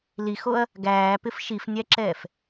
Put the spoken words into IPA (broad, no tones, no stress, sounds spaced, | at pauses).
l i x o ɐ̯ | ɡ æː p ɪ f ʃ i f nʲ æ ǁ ɛː f